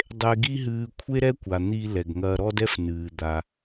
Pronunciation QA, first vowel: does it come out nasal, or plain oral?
oral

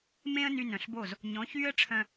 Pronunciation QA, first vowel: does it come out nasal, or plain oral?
nasal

